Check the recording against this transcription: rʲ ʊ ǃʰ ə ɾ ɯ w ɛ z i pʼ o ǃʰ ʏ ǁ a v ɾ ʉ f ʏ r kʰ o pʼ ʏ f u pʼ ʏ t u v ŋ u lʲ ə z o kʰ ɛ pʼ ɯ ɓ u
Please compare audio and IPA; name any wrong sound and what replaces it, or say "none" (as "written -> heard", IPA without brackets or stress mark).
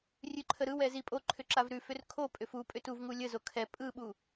ʊ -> ʉ